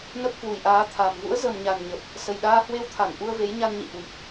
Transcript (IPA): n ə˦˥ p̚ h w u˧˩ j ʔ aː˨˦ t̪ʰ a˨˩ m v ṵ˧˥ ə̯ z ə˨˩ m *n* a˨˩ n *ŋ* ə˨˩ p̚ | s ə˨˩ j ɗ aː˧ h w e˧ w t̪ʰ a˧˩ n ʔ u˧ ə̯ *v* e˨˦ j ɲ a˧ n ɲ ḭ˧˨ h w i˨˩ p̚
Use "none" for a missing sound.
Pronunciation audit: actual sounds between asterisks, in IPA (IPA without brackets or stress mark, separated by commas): ɲ, ɲ, v